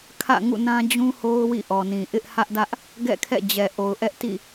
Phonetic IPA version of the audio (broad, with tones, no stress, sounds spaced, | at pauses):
kʰ ä̰˦˨ ŋ ṵ˦˨ n ã˦ d͡ʑ ũ˦ h o˦ ʊ̯ w ḭ˦˨ ʔ ɔ˨ n ĩ˨ ʔ ɪ˦ ʔ h ä˦ ʔ d ä˦ ʔ | ɡ ɛ̰˦˨ kʰ ɛ̰˦˨ d͡ʑ ɛ˨ ʔ o˨ ʊ̯ ʔ ɛ˦ ʔ t ḭ˦˨